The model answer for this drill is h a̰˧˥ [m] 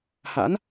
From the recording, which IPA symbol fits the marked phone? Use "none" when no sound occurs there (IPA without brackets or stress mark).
n